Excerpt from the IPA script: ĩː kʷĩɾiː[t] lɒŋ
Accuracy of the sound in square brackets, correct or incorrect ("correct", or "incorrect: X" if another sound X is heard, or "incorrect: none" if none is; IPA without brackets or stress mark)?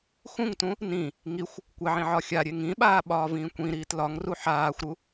correct